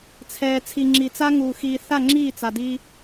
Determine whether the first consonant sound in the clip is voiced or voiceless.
voiceless